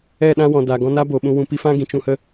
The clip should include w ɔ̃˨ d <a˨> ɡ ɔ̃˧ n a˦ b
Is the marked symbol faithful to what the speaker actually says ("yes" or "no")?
yes